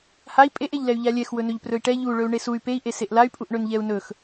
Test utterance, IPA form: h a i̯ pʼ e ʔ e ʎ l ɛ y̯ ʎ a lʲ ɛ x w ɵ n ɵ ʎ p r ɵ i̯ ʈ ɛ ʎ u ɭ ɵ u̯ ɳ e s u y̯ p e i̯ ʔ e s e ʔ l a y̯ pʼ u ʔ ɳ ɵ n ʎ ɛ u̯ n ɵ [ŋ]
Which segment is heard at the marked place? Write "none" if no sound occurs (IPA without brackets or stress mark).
x